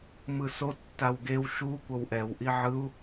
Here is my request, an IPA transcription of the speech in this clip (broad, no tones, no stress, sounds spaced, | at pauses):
m ɯ s o tː a w ɡ e w ʃ u kʷ ʌ w ʔ ɛ w ʔ i ʕ ɯ u̯